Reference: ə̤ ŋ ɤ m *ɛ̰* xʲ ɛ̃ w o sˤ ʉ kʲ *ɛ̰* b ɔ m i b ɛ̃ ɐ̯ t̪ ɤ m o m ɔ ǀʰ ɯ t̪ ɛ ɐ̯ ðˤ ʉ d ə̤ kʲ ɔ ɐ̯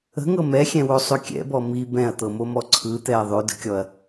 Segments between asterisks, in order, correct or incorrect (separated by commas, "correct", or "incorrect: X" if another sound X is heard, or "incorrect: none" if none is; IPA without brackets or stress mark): incorrect: ɛ, correct